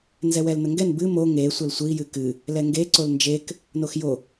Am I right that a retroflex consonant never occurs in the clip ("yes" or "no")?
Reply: yes